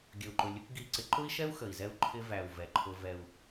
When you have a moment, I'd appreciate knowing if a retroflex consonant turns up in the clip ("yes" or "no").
no